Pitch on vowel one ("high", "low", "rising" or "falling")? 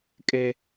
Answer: high